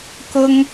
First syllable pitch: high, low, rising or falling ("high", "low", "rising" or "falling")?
high